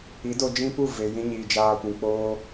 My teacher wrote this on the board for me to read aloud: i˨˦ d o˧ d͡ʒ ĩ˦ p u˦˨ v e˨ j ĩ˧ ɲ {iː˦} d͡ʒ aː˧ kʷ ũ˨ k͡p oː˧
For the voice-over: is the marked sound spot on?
no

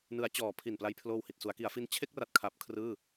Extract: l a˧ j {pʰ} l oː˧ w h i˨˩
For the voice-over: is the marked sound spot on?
yes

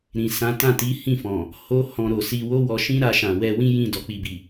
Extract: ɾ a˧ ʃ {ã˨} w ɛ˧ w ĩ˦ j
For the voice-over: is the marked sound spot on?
yes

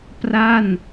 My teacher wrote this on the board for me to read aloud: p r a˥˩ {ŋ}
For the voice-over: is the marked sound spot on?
no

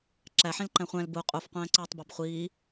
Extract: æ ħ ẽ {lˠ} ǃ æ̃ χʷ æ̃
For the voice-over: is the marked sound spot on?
no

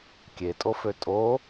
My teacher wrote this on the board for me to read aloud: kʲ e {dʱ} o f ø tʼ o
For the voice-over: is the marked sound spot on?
no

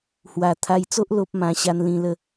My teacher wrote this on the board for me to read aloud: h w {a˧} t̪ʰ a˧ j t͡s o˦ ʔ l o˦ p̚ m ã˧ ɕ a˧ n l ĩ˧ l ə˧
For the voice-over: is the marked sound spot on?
no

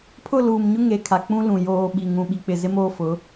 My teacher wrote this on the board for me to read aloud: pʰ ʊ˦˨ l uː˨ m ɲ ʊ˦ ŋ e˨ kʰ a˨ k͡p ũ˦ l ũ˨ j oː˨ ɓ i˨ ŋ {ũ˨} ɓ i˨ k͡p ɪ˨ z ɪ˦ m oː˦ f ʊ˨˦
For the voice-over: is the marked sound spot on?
yes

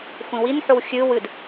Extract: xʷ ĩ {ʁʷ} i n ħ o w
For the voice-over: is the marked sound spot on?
no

